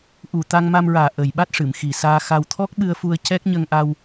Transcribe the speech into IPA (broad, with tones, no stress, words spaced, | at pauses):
ʔu˨˩t̪a˧ŋma˧mɹaː˨˩ ʔə˨˩jɓa˦˥t̚ʂɨ˨˩˨m xi˨˩saː˧xa˧w t̪ʰɔ˦˥k̚ɓɨ˧ə̯fu˧ə̯ cɛ˦˥k̚ɲə˧ŋʔa˧w